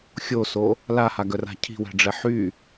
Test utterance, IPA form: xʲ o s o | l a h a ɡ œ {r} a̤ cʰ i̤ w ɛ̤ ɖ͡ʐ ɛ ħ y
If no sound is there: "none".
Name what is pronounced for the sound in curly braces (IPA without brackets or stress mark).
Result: r